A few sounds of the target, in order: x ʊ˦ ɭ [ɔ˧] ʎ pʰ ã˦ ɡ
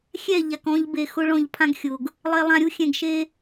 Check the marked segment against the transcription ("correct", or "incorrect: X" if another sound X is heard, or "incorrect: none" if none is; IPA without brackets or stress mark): incorrect: ɔ̃˧